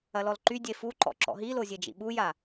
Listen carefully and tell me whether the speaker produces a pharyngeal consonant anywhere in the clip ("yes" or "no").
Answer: no